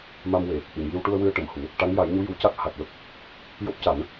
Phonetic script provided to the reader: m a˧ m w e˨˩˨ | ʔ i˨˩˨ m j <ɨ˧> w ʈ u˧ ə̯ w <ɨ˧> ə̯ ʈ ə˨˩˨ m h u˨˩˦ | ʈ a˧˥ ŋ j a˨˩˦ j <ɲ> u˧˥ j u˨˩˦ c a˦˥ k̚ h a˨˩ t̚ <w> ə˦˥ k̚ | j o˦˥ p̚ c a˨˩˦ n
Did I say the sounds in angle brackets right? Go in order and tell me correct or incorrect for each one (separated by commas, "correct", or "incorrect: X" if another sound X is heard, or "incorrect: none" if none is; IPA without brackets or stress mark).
incorrect: i˧, correct, correct, correct